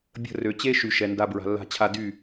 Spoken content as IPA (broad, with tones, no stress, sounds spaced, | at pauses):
bʲ ə̤˦˨ r ø˨ t͡ɕ e˦ ʃ y˨ ʃ ɛ˨ n d a˧ b ɹ a̤˨ lː a̤˧ t͡ɕʰ a˧ d y˦˨